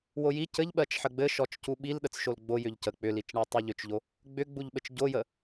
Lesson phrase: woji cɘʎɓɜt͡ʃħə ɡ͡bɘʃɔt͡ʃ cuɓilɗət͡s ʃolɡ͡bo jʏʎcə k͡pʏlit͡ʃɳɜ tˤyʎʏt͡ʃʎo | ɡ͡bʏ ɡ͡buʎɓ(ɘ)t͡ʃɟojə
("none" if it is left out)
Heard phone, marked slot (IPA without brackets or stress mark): ɘ